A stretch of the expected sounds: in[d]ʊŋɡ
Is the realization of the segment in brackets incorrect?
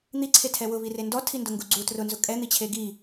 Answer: no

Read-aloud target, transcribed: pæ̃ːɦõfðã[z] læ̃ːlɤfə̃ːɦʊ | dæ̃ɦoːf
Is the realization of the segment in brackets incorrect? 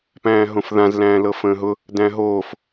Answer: no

